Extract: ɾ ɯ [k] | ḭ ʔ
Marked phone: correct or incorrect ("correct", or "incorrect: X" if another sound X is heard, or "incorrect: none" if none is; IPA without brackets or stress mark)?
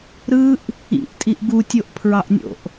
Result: incorrect: ʔ